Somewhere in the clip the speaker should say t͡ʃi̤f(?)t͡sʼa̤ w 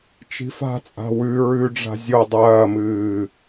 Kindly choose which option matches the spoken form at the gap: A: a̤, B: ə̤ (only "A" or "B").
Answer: A